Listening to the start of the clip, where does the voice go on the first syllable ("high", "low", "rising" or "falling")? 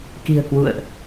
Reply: low